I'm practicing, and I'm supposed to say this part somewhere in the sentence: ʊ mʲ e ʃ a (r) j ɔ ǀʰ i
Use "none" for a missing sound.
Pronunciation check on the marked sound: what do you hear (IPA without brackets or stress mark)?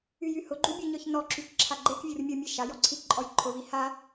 none